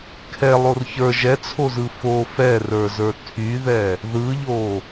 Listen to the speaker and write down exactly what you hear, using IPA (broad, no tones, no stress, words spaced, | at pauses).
kʰɛlˠor çə˞ ʒɛt͡sʰozɯ fo fɛrə˞zə˞ tʰyðɛ | ðɯʎo